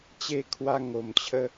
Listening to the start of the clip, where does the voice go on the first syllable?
falling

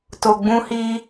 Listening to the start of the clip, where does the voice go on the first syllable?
low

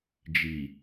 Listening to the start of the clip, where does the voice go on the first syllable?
low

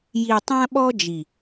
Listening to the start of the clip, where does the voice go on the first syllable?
low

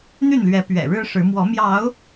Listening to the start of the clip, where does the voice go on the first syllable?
falling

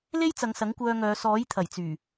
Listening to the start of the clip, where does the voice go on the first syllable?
high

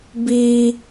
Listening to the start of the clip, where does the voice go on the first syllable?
high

